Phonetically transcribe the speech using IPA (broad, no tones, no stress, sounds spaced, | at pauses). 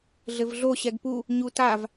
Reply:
ɮ ɘ v ɮ o ɕ ɛ ɡ p u | ɲ u t a v